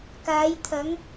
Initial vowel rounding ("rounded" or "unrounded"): unrounded